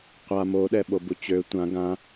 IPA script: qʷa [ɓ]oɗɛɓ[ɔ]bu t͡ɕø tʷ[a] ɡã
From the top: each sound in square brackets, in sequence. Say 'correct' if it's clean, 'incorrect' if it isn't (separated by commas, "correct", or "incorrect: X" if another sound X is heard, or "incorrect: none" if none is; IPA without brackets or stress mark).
incorrect: m, incorrect: o, incorrect: ã